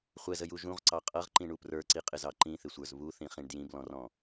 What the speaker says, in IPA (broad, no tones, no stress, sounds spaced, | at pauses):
χʷ ɛ z ə j u ʒ ũ ʁ ǀ ɑ qʼ ʌ ʁ ǃ ĩ ɳ u p r ə˞ ǀ i qʼ ɪ z ɑ ǃ ĩ θ ɪ sʷ ə˞ z β u θ ĩ χ ĩ ɳ d j ĩ b l ɔ̃ r ɔ̃